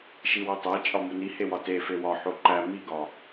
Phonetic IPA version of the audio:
ʃ i w o tˤ æ t͡ʃʼ ɒ m u n i h e w ɒ t e f e w ɒ ħ o ǃ æ m i ɡ ɒ

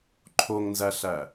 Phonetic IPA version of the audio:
ǃʰ o ŋ n z æ ɬ æ

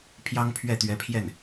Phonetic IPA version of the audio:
pʰ j ɑ˥ ŋ pʰ ɥ ɛ˥˩ t̪ ɥ ɛ˧˥ pʰ j ɛ˥˩ n

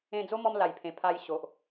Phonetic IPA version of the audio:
ẽ˧ d͡z o˦ m ɔ˧ m l a˨˩ j pʰ ẽ˨˩ pʰ a˧ j ɕ o˨ ʔ

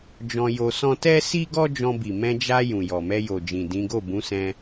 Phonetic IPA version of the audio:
d͡ʒ ɔ̃˧ j o˧ s ɔ̃˦ t ɛ˦ s i˦ ɡ ɔ˦ d͡ʒ ɔ̃˧ b i˨ m ɛ̃˧ d͡ʒ a˧ j ũ˨ j ɔ˨ m ɛ˧ j o˨ d͡ʒ ĩ˨ d ĩ˨˦ ɡ o˦˨ b ũ˨˦ s ɛ̃˧

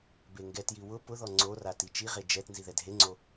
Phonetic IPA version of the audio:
b e ŋ ɡ ɛ t j i w ʊ p ʊ ð ɔ ŋ͡ǀ o r a t i t͡ʃ i ʁ e d͡ʒ ɛ t n z i ð ɛ dʱ e ŋ͡ǀ o

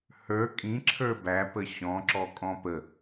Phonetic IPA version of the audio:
h ə˞ kʼ ĩ ǁʰ ə˞ b æ p ə ɕ ɔ̃ ǁ ɔ kʼ ɔ̃ p ə

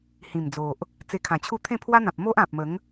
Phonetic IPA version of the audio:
h ĩ˨˩ m d͡z o˨ ʔ | t͡s e˧ kʰ ã˨˩ t͡ɕʰ u˥˧ t̪ʰ ẽ˥˧ pʰ w a˦ n̪ ã˨ p̚ m o˦ ʔ ã˨ p̚ m ə˨˦ ŋ

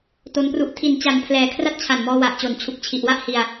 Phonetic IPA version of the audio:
t o˦˥ n p r u˥˩ ʔ tʰ i˨˩ n t͡ɕ a˨˩ n pʰ l ɛː˨˩ kʰ r a˥˩ t̚ t͡ɕʰ a˨˩ n m ɔː˧ w a˨˩ ʔ t͡ɕ o˨˩ n t͡ɕʰ u˨˩ k̚ t͡ɕʰ i˨˩ ʔ w a˥˩ ʔ h i˧ a̯

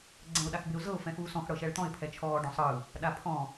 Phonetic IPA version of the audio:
ɡ͡ǀ ɛ̃ ʊ̯ ɗ a x b e ʊ̯ z ɤ ʊ̯ f ɛ̃ x uː s ɔ̃ x ɽ ɤ ʃ ɛ ɭ t̪ ɔ̃ ɪ̯ pʰ ɛ t͡ʃʰ ɔː ɖ ɔ̃ sˤ ɯ | ɗ a pʰ ɔ̃

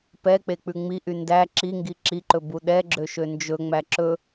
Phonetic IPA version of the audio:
p ɛ k͡p e k͡p ʉ ŋ͡m i ʔ y n d æ ǁ i ŋ ɡ i ǁ i ǃ ɵ b u ɗ ɛ ɡ͡ǁ ø ʃ ø n d͡ʒ ɵ ŋ͡m æ ǁ ɵ

